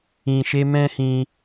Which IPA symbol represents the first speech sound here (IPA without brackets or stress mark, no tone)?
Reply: ĩ